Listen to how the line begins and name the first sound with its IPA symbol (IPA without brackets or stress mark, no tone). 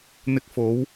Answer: n̪